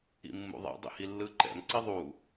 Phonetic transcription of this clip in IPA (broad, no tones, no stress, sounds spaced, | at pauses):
ḭ mː ṵ ðˤ ɛ̰ dˤ ḭ h i lː ɯ ǃ ɛ̰ m ǀ i ðˤ u